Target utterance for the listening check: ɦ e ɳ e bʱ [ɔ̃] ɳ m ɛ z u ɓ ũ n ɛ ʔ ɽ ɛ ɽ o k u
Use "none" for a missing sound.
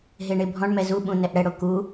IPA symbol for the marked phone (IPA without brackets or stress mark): ɔ̃